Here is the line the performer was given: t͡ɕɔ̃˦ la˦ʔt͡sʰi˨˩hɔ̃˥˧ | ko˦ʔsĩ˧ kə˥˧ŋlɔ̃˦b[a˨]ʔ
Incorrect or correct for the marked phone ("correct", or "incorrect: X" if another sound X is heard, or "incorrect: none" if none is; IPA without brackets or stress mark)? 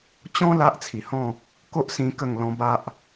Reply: incorrect: a˦